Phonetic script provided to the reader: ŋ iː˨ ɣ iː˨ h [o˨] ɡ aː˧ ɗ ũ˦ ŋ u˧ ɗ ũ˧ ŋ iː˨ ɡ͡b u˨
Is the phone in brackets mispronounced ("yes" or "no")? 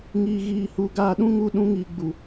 yes